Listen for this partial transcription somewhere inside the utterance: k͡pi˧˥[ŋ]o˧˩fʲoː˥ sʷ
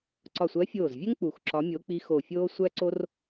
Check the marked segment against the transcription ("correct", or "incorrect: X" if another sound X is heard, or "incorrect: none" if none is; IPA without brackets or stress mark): incorrect: x